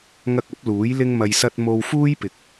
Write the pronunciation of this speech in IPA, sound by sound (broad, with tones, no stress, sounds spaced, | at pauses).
ŋ ɐ˧ k̚ ɐ˨˥ p̚ l uː˨˥ j l ɪ˥ ŋ m ɐ˧ j s ɐ˥ t̚ m o˧ w f uː˥ j p ɪ˨ k̚